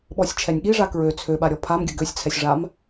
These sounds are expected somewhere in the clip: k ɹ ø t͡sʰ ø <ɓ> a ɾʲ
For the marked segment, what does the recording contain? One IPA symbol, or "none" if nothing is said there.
ɓ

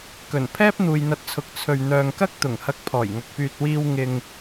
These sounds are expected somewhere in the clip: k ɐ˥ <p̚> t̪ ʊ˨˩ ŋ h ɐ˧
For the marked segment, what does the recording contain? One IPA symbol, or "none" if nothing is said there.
k̚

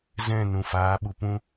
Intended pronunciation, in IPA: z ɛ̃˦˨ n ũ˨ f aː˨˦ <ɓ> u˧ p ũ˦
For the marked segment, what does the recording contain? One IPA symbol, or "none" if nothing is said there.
ɓ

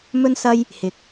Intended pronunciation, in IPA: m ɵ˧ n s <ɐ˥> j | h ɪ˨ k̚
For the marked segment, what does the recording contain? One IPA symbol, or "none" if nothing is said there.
ɐ˧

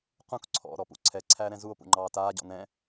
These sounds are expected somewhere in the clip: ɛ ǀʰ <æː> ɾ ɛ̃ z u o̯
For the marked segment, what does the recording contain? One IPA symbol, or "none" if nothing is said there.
æː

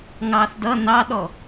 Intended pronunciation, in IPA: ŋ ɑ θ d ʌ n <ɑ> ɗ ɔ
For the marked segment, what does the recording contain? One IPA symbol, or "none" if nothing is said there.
ɑ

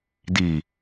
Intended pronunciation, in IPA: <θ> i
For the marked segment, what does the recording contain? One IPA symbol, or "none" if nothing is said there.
d̪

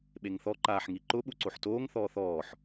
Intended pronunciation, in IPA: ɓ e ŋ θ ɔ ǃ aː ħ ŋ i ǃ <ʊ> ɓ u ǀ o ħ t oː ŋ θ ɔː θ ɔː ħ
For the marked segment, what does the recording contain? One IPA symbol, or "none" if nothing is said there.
ʊ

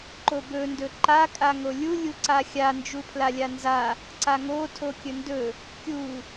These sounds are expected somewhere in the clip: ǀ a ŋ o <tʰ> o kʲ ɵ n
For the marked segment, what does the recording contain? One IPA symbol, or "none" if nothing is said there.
tʰ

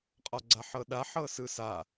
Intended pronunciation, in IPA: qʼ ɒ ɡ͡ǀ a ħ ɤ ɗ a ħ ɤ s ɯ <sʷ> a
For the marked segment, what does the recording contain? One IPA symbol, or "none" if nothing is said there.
s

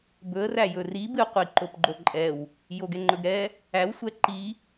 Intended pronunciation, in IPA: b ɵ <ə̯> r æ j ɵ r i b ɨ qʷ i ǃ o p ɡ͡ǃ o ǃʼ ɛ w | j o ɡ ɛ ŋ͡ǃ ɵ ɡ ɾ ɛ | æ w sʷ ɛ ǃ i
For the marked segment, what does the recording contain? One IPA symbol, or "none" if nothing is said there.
ə̯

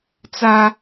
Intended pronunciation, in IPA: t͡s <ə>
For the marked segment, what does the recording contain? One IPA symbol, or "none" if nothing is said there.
a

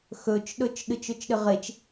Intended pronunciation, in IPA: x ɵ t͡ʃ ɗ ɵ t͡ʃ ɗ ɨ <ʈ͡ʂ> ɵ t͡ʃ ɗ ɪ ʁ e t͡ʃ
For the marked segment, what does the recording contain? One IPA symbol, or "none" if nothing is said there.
t͡ʃ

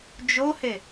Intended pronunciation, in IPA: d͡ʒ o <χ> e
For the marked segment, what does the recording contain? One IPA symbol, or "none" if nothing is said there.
h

